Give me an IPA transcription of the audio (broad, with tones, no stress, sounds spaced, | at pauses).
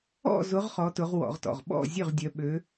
ɔ̰˥˨ z ʊ˨˦ ʁ χ ɔ˨˦ t ʊ˨˦ ʁ w ɔ̰˧˩˧ ʁ t ɔ̰˩˧˩ ʁ ɓ ɔ̰˥˨ zʲ ø˥˨ ʁ dʲ œ˨˦ ɓ ø˨˦